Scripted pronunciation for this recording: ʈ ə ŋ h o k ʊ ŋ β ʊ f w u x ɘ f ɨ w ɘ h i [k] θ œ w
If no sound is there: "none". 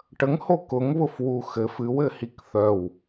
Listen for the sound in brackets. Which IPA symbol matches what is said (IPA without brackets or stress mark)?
k